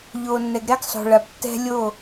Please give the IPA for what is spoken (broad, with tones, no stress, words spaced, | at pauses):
ʎoː˨nːɛ˨ɡ ɾɛ˦ɡ sˤo̤˨ɭa˨b tːɛ̤˦ lʲo˦˨